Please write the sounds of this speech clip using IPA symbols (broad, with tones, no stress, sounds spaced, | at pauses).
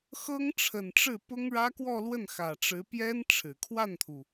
x ɤ˥ ŋ ʈ͡ʂʰ ə˨˩ n ʈ͡ʂ ɻ̩˥˩ p ʊ˥ ŋ ɻ ä˥ k w ɔ˥˧ l w ə˥˩ n x ä˨˩ ʈ͡ʂ ɻ̩˧˥ p j ɛ˥ n ʈ͡ʂʰ ɻ̩˨˩ kʰ w a˥˩ n t̪ʰ u˩